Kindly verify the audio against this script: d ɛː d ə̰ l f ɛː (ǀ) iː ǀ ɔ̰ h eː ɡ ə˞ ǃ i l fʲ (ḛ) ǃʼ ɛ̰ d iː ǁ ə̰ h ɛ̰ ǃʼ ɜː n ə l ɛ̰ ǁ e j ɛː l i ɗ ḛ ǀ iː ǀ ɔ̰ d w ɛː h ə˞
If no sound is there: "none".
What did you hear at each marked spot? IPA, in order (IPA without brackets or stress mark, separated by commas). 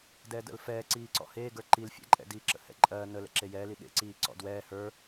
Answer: ǀ, ɛ̰